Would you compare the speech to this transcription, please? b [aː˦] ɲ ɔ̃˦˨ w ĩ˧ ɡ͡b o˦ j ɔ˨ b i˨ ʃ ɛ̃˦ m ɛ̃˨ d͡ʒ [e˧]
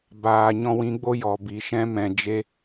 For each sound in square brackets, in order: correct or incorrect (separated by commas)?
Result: incorrect, correct